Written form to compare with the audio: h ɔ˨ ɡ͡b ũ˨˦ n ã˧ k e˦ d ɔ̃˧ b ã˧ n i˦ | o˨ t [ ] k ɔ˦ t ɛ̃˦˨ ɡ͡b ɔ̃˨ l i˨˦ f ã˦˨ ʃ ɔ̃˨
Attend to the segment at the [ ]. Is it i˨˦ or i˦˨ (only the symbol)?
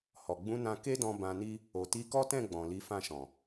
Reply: i˨˦